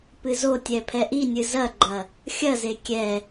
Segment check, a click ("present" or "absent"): present